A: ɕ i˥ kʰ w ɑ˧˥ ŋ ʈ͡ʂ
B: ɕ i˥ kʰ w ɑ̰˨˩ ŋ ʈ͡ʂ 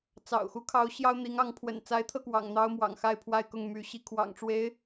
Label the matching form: B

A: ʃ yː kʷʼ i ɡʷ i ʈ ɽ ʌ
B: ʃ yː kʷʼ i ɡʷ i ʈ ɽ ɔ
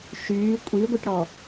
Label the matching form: B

